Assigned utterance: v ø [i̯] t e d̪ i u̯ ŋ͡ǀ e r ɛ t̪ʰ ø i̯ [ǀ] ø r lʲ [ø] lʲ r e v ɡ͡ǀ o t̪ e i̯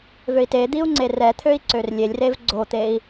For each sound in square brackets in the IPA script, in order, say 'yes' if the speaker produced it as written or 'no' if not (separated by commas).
yes, yes, no